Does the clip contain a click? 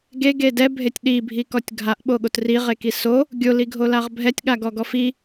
no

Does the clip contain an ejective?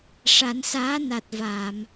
no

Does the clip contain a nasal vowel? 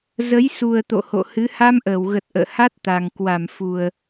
no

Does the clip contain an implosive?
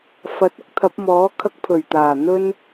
no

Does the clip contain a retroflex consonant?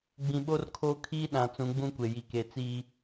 no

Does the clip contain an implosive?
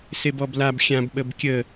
yes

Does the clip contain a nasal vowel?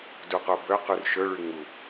no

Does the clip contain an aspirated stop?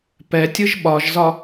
no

